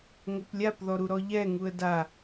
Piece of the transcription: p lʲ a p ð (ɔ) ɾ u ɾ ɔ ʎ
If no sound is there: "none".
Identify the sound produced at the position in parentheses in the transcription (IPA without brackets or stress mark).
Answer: ɔ